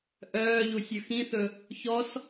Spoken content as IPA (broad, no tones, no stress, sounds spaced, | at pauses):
ʔ œː ʎ u sʲ ɵ x ĩ θ ɵ | ç ɔ s